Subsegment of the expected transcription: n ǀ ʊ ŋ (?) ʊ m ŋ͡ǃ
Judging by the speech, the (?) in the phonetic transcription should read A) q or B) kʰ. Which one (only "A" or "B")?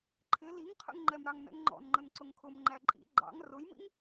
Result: B